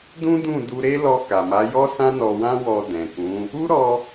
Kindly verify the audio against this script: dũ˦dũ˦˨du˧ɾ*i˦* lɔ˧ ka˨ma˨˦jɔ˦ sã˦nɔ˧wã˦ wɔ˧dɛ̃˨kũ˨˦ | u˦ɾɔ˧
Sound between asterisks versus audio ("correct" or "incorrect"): incorrect